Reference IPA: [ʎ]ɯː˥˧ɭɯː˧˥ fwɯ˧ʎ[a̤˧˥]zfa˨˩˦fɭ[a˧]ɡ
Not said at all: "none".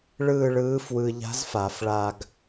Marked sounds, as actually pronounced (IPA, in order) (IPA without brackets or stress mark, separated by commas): ɭ, a̤˧˥, a˧